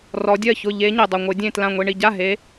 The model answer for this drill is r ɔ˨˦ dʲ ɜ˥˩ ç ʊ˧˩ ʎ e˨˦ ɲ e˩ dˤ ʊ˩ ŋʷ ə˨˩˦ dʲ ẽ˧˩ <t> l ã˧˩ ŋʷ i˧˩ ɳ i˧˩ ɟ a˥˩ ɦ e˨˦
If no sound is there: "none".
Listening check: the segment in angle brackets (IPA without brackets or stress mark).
t